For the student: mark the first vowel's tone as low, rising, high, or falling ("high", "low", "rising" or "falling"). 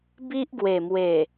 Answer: high